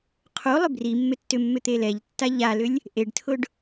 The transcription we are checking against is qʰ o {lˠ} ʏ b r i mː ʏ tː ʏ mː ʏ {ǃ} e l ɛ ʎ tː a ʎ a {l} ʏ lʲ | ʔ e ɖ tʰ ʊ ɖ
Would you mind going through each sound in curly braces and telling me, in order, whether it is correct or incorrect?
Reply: correct, incorrect, correct

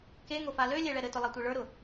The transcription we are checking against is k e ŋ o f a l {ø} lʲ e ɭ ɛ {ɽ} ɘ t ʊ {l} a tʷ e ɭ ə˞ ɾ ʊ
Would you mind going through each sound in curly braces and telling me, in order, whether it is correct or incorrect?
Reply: correct, incorrect, incorrect

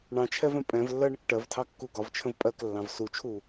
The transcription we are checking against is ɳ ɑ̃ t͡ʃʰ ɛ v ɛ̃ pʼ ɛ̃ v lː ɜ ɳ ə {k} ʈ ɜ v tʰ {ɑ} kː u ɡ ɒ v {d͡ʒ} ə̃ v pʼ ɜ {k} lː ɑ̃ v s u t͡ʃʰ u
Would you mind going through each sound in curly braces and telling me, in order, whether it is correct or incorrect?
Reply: correct, correct, incorrect, correct

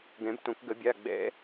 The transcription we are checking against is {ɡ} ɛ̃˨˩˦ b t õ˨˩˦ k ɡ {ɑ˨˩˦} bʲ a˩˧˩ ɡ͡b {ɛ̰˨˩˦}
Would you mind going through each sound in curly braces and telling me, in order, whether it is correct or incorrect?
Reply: correct, incorrect, correct

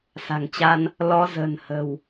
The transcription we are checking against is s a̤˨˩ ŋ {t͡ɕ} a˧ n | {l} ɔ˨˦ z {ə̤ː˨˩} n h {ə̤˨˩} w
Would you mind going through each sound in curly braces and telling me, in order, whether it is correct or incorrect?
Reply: correct, correct, correct, correct

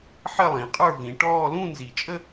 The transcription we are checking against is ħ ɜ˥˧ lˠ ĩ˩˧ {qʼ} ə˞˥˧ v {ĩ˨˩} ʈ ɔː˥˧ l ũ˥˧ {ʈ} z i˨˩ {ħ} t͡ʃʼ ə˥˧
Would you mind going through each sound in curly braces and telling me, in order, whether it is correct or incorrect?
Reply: correct, incorrect, incorrect, incorrect

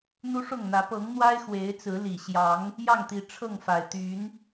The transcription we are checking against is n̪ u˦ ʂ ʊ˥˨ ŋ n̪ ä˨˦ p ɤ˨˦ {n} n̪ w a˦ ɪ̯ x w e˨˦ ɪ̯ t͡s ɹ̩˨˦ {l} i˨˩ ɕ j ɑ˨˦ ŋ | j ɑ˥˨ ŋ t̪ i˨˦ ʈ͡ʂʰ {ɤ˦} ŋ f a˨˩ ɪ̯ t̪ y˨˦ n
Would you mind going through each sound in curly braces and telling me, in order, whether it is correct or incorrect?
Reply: incorrect, correct, incorrect

